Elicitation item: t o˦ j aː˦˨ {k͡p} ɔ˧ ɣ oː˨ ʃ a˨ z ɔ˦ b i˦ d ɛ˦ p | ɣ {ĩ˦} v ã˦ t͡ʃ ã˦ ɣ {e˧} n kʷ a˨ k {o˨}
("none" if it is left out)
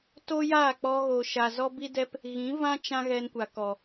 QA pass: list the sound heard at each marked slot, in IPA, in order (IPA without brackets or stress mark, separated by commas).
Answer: k͡p, ĩ˨˦, ɛ˧, ɔ˨